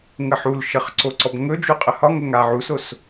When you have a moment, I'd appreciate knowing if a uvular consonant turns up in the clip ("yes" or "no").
yes